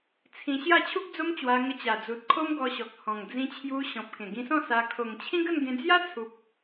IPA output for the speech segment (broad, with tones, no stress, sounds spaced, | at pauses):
t͡sʰ ĩ˧ ɕ j a˥˧ t͡ɕʰ u˦ k̚ d͡z o˦ m t͡ɕ w a˧ ŋ ə˧ t͡ɕ a˨˩ d͡z u˨ t̚ kʰ o˦ m ɡ ɔ˧ ɕ ɔ˨ k̚ h ɔ̃˨˩ ŋ d͡z ĩ˧ t͡ɕʰ j u˧ ɕ ɔ̃˨ p̚ k ẽ˨˩ ɡ ĩ˧ s ɔ̃˥˧ s a˧ kʰ o˨˩ ŋ t͡ɕʰ ĩ˦ ɡ ə˥˧ n ɡ ẽ˧ d͡z j a˦ t͡sʰ u˨ p̚